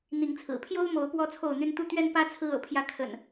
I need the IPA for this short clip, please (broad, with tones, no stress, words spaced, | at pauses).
n̪i˨˦ŋt͡sʰɹ̩˨˩ pʰjo˦ʊ̯mo˨˦ʊ̯ pwɔ˦t͡sʰo˥˨ʊ̯n̪y˦n t̪u˥˨t̪ɥɛ˦npä˦ t͡sʰɹ̩˦ɤ̰˨˩pʰjä˥˨ kʰə̰˨˩n